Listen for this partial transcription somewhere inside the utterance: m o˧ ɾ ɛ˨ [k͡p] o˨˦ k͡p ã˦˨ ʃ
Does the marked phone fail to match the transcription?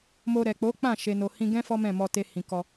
no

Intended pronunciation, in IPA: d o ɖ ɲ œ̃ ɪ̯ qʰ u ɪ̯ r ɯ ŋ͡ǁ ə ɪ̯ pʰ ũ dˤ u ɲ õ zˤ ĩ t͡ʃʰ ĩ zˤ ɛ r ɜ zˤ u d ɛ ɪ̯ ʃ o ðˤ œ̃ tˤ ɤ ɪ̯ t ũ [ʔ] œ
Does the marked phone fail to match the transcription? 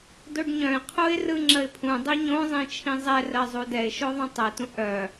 no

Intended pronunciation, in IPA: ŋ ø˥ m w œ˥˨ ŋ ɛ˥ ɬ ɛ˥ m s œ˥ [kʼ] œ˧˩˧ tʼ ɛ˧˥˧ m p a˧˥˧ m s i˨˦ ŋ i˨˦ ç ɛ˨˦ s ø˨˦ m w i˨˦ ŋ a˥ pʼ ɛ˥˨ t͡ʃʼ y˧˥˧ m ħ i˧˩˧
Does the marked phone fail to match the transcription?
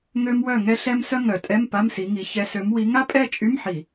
yes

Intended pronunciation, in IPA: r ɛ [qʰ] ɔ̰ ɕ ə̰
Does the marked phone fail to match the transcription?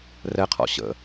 no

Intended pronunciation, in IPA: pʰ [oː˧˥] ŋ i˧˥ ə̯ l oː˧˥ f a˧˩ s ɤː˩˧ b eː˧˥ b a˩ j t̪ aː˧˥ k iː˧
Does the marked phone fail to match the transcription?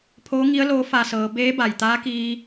no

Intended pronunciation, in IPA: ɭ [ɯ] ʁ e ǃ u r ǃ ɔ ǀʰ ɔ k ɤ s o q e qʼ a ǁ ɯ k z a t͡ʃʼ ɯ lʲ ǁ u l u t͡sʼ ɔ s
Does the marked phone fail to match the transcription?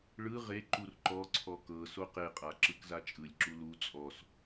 no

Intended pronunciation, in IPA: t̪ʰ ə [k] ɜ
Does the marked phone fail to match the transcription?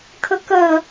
no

